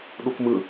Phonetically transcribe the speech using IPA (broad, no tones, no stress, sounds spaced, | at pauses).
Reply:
ɗ u k m ɯ